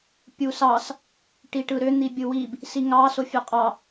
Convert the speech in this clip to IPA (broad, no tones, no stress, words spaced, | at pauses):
pʲusɑs | ʈiʈɯɾø n̪ibʲɯwib | siŋɑ sofʲøqʼɑ